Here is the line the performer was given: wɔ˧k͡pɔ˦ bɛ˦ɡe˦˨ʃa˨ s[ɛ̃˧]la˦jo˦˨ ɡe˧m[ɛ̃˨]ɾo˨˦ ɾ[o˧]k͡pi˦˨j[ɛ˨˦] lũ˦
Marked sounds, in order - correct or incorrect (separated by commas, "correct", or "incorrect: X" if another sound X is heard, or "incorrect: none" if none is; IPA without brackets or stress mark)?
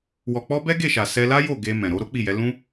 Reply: incorrect: ɛ˧, correct, incorrect: o˦, correct